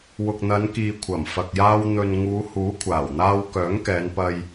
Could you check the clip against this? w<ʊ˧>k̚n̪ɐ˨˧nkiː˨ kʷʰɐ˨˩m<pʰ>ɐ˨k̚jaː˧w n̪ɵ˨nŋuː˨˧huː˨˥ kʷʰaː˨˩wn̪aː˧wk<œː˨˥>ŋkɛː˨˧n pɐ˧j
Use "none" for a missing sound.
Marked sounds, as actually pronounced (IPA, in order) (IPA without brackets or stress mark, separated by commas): ʊ˨, f, œː˨˥